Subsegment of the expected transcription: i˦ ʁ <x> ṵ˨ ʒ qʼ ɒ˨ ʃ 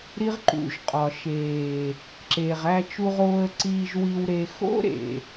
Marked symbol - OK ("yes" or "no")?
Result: no